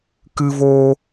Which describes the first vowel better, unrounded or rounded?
unrounded